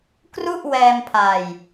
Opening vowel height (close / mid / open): close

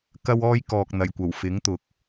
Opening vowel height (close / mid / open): open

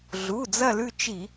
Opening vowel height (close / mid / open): close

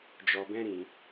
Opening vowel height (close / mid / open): mid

